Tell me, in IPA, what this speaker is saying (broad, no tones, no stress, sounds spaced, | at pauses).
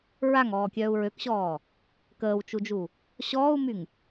ɹ a ŋ ɔː kʲ œː u̯ ɹ ø k ɕ ɔː | k əː w t͡ʃ u d͡ʒ u | ɕ ɔː u̯ m y ŋ